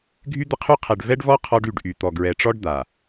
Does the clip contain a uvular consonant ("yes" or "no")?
yes